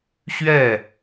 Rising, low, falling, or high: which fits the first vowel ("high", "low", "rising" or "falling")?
falling